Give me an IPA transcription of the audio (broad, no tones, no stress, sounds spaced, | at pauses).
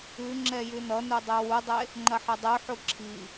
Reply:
ʉ ŋ͡ǁ ɛ j ʉ n ʌ n u dˤ e w u dˤ e | ŋ͡ǃ ɐ ħ ɐ dˤ ʉ ħ u ǁʰ i